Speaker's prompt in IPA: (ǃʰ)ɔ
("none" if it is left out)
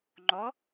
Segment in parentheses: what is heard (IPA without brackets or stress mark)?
ŋ͡ǃ